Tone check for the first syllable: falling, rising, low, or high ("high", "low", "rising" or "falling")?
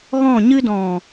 falling